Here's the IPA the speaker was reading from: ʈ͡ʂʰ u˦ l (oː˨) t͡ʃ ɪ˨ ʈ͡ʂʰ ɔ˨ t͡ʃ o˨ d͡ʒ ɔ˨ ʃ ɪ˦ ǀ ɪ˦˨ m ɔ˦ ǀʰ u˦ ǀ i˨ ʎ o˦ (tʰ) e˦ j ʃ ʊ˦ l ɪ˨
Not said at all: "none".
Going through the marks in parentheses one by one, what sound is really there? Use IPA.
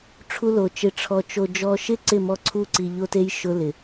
o˨, t

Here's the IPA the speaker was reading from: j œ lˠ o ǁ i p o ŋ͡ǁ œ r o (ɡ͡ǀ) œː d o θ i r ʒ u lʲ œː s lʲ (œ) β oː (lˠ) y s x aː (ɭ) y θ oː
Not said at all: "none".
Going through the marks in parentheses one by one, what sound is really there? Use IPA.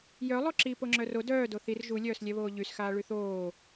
d, ɛ, ʎ, ɭ

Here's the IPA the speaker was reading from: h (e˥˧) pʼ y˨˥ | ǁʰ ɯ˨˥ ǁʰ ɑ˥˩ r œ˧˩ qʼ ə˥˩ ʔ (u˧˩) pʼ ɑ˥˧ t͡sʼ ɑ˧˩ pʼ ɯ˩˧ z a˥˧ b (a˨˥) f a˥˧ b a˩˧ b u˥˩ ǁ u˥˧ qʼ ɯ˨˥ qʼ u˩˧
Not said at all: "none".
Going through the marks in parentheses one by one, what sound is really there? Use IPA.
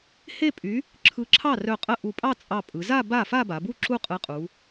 e˥˧, u˧˩, a˥˩

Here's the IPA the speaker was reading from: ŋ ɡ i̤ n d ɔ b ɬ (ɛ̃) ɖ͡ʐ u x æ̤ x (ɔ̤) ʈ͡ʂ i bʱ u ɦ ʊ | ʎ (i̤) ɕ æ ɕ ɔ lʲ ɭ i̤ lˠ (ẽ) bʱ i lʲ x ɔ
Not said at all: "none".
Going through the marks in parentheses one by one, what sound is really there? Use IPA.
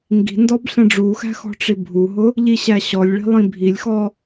ɛ̃, ɔ̤, i, ĩ

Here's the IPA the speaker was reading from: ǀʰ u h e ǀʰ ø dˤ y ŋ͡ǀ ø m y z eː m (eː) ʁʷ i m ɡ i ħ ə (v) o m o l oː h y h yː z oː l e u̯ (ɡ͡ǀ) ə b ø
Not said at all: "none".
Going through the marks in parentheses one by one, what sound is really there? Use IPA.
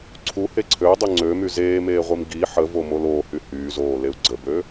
eː, v, ɡ͡ǀ

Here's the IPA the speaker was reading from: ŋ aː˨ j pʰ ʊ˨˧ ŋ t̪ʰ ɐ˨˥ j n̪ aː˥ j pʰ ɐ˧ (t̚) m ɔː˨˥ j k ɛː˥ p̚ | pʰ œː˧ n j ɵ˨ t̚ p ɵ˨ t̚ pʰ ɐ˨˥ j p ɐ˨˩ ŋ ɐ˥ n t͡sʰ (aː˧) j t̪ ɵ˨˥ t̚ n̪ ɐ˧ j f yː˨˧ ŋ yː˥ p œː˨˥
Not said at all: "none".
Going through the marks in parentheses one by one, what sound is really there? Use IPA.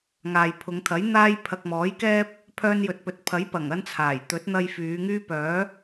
k̚, aː˨˩

